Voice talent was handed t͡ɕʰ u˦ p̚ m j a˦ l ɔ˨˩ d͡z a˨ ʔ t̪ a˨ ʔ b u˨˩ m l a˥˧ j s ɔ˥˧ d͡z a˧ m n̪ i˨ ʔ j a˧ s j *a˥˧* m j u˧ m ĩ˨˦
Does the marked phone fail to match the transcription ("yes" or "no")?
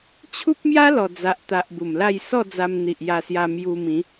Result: yes